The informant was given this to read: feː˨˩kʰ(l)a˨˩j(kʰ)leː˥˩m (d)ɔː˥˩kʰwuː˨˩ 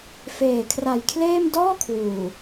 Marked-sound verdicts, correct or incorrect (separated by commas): incorrect, correct, correct